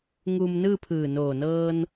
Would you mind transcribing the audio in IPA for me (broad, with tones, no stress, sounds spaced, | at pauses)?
ŋ uː˧ m n ɯː˥˨ pʰ ɯː˧˩ n oː˧˩ n ɤː˧ n